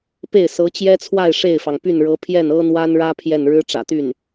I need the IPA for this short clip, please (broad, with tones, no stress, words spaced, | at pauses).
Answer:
pe˥˩ɪ̯sɤ˧˥t͡ɕjɛ˥t͡sʰwa˥˧ɪ̯ ʂe˥˩ɪ̯fɑ˩ŋpy˥˩nɻɤ˧˥ pʰjɛ˥˩nɤ˥n̪wa˥nɻä˥ pʰjɛ˥˩n ɻɻ̩˥ʈ͡ʂä̰˨˩t̪y˥˩n